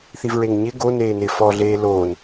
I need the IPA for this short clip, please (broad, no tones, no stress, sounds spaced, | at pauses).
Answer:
θ i v ɹ e ŋ ɲ ɪ ɡ o n eː n ɪː f ɔ ɮ eː l oː n